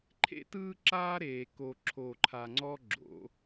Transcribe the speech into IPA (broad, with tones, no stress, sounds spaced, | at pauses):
ǃʰ ḛ˦ t ɯː˦ ǁ aː˦ ɾ eː˨ k o˨ ǁʰ o˨ ǃʰ a˨ ŋ͡ǀ ɔ˦ ɡ͡ǁ o̰˨˦